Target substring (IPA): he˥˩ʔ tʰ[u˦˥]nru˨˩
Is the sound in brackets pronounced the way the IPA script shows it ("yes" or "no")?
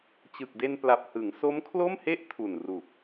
no